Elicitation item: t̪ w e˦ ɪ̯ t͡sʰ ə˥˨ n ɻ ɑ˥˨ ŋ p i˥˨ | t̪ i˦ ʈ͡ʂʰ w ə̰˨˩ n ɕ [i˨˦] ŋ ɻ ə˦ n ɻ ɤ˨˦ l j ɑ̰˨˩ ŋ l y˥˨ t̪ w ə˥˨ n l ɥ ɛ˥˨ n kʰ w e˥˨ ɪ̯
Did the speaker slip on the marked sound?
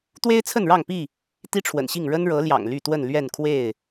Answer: yes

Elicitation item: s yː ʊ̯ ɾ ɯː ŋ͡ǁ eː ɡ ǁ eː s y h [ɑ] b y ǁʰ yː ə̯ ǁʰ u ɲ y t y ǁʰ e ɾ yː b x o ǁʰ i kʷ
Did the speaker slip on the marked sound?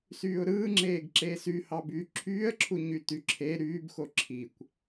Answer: no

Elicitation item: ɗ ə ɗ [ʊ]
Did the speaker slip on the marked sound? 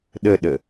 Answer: yes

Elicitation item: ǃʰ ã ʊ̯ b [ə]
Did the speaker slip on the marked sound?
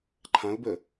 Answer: no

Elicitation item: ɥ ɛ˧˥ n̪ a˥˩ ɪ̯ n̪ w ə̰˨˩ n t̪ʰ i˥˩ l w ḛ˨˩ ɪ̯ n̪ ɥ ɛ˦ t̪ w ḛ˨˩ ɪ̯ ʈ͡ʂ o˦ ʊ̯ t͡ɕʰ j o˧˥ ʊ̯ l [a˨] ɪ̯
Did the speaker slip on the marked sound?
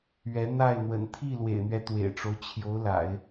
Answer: yes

